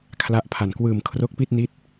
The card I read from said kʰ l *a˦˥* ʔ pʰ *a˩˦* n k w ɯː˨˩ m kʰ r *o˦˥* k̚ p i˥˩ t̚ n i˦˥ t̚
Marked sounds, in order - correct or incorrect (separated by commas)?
correct, incorrect, correct